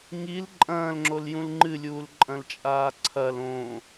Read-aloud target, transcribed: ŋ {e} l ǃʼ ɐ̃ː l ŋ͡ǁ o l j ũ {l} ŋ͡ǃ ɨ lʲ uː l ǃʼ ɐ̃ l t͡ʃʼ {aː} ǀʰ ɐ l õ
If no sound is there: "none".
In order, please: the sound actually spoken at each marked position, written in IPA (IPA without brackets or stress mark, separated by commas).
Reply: i, l, aː